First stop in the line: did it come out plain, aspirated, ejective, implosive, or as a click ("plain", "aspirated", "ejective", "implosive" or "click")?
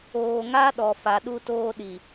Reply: implosive